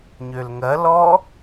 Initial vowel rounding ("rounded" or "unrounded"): rounded